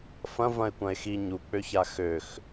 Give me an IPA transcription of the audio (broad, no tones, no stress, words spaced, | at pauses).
fɐ̃ vɐ̃e̯kʷɐ̃e̯xi ɲuk͡pøça xøx